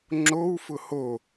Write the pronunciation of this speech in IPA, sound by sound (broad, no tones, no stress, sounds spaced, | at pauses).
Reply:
ŋ͡ǁ o w f ʊ h o